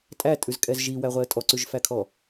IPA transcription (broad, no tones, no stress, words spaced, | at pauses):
tʼætʼʉzkʼɛz ʒiwæʁʷɛə̯ tʼɔǀʉʒfækʰɔ